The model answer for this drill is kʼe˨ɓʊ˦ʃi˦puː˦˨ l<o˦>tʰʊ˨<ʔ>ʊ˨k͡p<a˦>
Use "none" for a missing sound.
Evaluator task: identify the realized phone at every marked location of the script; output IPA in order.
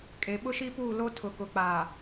o˦, k, a˨

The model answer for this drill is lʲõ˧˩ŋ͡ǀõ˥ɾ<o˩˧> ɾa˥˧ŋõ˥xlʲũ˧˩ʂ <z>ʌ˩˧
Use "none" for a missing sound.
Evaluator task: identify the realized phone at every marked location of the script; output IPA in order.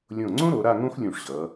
o˩˧, ʑ

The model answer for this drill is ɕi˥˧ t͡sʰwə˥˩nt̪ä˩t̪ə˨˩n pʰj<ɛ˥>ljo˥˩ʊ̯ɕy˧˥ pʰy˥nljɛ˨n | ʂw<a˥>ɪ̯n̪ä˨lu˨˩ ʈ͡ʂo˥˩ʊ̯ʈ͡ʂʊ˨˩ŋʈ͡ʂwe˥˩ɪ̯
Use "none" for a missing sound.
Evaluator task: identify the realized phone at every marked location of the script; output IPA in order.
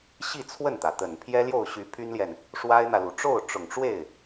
ɛ˥, a˥

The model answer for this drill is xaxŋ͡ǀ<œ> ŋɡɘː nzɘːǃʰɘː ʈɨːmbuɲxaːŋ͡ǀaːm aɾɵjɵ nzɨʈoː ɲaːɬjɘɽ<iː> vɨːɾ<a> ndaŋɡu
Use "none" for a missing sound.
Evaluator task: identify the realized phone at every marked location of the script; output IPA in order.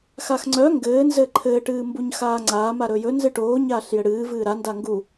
œ, ɨː, a

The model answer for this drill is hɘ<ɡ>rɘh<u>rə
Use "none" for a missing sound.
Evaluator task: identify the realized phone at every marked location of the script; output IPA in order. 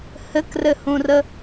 k, ũ

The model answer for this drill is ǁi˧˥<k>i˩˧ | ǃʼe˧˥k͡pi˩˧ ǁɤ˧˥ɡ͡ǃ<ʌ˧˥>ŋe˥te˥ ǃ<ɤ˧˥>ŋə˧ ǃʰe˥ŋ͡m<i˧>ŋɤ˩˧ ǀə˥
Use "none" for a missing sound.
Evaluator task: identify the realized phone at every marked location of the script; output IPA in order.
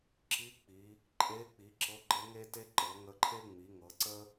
k͡p, ə˧˥, ɤ˩˧, i˩˧

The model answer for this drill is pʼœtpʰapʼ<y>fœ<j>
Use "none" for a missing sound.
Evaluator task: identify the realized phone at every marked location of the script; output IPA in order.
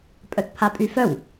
y, w

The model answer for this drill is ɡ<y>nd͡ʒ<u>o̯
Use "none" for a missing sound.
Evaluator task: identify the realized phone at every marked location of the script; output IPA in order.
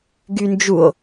y, u

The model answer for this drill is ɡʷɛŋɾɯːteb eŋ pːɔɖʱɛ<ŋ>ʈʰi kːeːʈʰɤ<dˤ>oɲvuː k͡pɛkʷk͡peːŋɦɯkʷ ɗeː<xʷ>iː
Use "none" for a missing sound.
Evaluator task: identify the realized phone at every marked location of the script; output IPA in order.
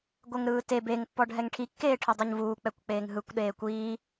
ŋ, dˤ, kʷ

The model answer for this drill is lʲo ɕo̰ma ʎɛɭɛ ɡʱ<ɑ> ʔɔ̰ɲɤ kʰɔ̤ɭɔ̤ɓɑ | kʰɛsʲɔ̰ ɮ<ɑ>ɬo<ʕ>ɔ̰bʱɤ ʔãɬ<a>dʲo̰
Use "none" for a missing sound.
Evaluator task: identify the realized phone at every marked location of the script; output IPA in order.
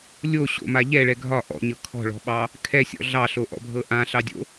ɒ, ɑ, ʔ, ɑ

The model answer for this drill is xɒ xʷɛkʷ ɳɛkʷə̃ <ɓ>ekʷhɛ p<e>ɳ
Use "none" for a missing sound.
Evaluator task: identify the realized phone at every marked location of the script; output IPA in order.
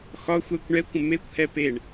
m, e

